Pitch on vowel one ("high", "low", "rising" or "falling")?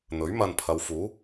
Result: rising